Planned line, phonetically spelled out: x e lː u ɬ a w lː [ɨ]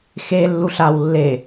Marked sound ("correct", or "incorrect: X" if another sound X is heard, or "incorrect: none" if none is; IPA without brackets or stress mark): incorrect: e